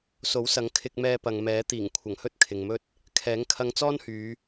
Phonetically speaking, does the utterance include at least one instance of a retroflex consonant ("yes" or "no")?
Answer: no